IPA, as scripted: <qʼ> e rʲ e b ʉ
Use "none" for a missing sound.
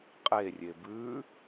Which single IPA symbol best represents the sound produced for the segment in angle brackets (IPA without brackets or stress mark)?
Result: qʼ